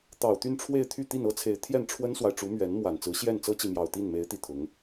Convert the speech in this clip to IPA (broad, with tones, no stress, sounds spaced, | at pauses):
t̪ ɑ˨˩ ʊ̯ t̪ y˥˧ n ʈ͡ʂʰ w e˥˧ ɪ̯ t̪ʰ y˥˧ t̪ i˥˩ n ɤ˥ t͡sʰ e˧˥ ɪ̯ t̪ʰ j ɛ˥˩ n ʈ͡ʂʰ w ə˥ n s w a˨ ɪ̯ ʈ͡ʂ u˧˥ m ɥ ɛ˧˥ n m w a˨˩ n t͡s ɹ̩˧˥ ɕ j ɛ˥˩ n t͡s ɤ˥ t͡ɕ i˨ m j ɑ˨˩ ʊ̯ t̪ i˥˩ n m e˧˥ ɪ̯ t̪ i˨˩ t̪ʰ ʊ˧˥ ŋ